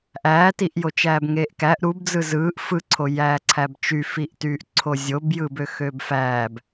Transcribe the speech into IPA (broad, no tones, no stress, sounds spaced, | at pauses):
ʔ æː t i ʔ j o t͡ʃ æː b ŋ eː ʔ k æ ʔ ɾ u b d͡z ɯ z ɯː ʔ f ɯ ǀʰ o j æː ǀʰ æ b t͡ʃ y f i ʔ t yː ʔ ǀʰ o zʲ o b j ɯː b ø x ø b f æː b